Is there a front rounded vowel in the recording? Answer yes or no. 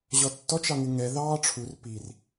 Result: no